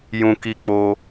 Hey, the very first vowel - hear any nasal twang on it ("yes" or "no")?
yes